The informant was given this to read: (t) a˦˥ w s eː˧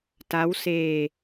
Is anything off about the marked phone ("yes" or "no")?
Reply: no